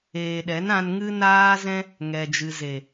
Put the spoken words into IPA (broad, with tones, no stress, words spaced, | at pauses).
eː˨ɗɛ˨˦nã˧nŋɨ˦ naː˦zɛ̃˦ | ŋɛ˨d͡ʒɨ˨ ze˨